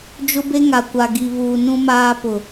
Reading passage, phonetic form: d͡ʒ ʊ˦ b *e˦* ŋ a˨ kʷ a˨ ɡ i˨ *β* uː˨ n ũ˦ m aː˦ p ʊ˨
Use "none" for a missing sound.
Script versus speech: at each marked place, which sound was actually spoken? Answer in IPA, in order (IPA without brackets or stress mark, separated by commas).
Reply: e˦, β